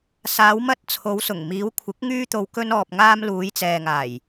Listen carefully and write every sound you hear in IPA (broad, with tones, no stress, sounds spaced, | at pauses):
s aː˨˧ w m ɐ˧ t̚ t͡sʰ o˨˧ w s ʊ˨˩ ŋ m iː˨˧ w kʷʰ ɪ˨˥ k̚ ŋ yː˥ t̪ o˧ w k ɵ˧ n ɔː˨ p̚ ŋ aː˧ m l uː˨˧ j t͡s ɛː˨ ŋ aː˨˩ j